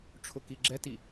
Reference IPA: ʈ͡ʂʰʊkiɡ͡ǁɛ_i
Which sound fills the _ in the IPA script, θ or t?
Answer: t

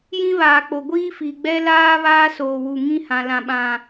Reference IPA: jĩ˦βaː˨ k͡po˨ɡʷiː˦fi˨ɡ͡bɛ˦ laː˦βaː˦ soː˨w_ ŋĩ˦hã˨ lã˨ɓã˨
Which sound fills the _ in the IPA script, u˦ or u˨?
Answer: u˨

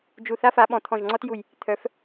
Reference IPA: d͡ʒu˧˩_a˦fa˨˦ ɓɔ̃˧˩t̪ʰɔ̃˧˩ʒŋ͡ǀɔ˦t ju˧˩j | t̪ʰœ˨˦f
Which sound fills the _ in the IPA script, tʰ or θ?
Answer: θ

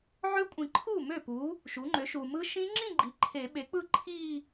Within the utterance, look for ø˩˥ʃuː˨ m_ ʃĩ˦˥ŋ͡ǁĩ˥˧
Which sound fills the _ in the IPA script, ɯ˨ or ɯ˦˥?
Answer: ɯ˦˥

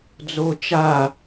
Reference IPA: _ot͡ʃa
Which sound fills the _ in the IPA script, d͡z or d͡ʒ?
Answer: d͡z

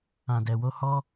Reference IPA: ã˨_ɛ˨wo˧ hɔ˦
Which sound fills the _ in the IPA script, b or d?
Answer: d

